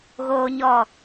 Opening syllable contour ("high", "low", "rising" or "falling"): high